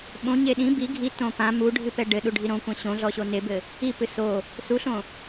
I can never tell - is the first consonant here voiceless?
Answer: no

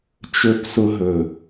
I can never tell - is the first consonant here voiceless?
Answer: yes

